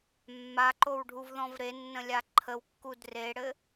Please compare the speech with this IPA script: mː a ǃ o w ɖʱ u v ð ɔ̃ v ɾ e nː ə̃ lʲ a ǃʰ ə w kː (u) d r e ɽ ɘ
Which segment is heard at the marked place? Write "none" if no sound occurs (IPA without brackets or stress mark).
u